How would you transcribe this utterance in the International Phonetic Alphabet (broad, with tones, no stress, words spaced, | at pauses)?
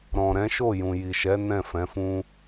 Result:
ɾɔ̃˨ɾɛ̃˨˦ʃo˦˨ jũ˨ji˨ʃɛ˨˦ nɛ̃˦˨fɛ̃˨˦fũ˦